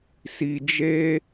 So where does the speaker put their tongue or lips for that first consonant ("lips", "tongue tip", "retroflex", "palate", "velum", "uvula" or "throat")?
tongue tip